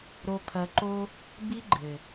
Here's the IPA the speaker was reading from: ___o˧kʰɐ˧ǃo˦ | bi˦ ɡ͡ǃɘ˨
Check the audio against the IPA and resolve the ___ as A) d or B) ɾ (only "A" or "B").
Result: B